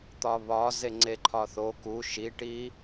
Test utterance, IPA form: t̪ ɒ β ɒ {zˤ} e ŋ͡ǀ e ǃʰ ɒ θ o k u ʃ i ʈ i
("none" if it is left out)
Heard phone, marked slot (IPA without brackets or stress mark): z